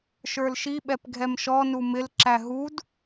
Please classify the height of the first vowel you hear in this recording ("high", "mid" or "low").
mid